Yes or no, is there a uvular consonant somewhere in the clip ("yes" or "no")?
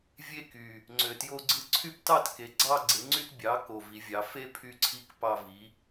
no